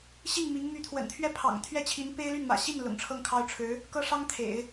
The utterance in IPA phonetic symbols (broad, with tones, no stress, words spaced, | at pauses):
ɕi˥˩ŋ mi˧˥ŋ my˧˥t̪ʰwə̰˨˩nt̪ʰɥɛ˥˩ pʰɑ̰˨˩ŋ t̪ʰɥɛ˥t͡ɕʰi˧˥n pe˥ɪ̯ly˥˩nmä̰˨˩ ɕi˥˩n lʊ̰˨˩ŋʈ͡ʂʰɤ˥˩ŋkʰɑ˥ʊ̯ ʈ͡ʂʰɻ̩˧˥ | kɤ˥ ʂɑ˥ŋ t̪ʰḛ˨˩˦ɪ̯